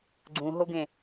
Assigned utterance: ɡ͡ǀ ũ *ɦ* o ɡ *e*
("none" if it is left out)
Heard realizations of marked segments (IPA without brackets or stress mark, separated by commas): ɦ, ẽ